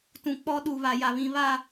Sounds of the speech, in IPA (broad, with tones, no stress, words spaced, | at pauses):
tũ˨k͡pɔ˦ɗu˨ βa˨ja˨βĩ˨ βa˦˨